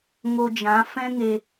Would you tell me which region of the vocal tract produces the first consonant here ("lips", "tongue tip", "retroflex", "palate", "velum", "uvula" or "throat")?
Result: velum